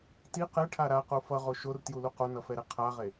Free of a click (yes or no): yes